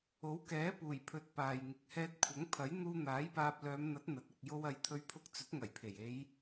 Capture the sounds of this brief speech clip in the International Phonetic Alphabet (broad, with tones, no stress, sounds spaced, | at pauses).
o˨˥ w k ɛː˨˥ p uː˨˩ j pʰ ɵ˨ t̚ p aː˨ j ŋ ɪ˨˥ k̚ h ɛː˧ t̚ kʷʰ ɐ˨˥ ŋ pʰ ɐ˨˥ j n̪ uː˧ n̪ aː˨˥ j p aː˧ p̚ l œː˨˧ m n̪ ɐ˨˥ t̚ n̪ ɐ˨ t̚ ɪ˨ k̚ j o˧ w ɐ˨˧ j t̪ʰ ɵ˧ ɥ pʰ ʊ˧ k̚ t͡s ɵ˨˥ t̚ ŋ ɐ˨˩ j pʰ e˨˩ j e˨˧ j